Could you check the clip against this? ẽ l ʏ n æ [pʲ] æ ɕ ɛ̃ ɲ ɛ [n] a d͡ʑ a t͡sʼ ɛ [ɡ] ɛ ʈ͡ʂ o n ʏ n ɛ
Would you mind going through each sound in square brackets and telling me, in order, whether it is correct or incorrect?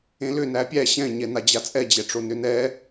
correct, correct, incorrect: d͡ʑ

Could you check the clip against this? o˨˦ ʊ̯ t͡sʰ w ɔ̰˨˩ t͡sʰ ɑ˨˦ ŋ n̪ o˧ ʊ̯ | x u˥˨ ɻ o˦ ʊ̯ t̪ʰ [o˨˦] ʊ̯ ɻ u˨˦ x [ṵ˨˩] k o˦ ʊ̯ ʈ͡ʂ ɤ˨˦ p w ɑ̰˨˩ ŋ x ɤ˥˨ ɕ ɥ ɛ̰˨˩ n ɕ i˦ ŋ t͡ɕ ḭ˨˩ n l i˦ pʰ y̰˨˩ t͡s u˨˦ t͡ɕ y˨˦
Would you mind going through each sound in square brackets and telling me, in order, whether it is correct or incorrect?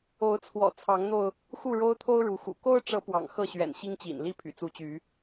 incorrect: o˦, correct

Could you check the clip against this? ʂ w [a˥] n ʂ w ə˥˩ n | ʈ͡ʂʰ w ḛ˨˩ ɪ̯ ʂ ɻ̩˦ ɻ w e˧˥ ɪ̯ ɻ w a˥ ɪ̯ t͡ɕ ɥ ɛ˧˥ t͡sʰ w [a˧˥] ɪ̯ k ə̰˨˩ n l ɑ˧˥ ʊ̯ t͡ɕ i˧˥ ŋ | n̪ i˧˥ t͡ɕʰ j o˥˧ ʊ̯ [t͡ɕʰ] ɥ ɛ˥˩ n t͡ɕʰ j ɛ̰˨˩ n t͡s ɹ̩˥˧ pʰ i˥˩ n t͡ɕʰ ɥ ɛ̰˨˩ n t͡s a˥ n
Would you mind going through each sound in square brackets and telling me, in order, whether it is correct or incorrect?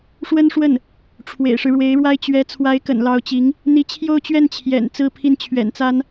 incorrect: ə˥, correct, incorrect: t͡ɕ

